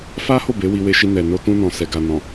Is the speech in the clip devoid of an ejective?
yes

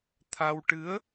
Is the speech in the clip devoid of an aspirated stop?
no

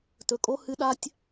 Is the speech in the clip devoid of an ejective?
no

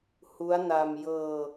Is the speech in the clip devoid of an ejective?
yes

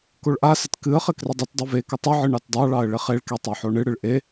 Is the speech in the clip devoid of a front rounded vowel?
yes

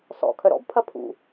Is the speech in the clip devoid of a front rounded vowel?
no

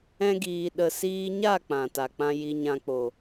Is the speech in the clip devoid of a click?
yes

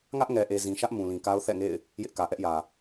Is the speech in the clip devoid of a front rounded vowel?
yes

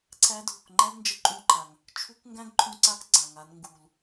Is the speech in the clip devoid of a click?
no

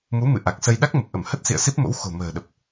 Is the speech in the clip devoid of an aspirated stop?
yes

